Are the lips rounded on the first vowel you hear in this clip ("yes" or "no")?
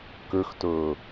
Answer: yes